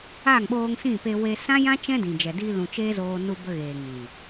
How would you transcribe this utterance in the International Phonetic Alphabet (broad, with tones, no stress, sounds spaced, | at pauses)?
aː˦˨ ŋ ɓ oː˧ ŋ s ĩ˦˨ p e˧ w e˧ s ã˦ j ã˦ t͡ʃ ɛ̃˦ d ĩ˨ d͡ʒ ɛ˨ d iː˧ l ũ˨ t͡ʃ eː˦ z oː˧ n u˧ b ə˧ ɣ eː˨ ŋ ĩ˨